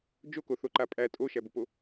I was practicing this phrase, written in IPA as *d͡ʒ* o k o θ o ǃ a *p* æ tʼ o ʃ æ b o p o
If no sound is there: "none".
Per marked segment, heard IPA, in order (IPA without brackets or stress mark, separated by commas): d͡ʒ, pʼ